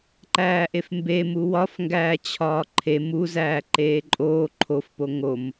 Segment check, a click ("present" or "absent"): present